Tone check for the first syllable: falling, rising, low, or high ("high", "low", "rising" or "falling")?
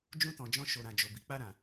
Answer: high